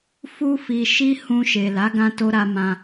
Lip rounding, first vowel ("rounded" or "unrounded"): rounded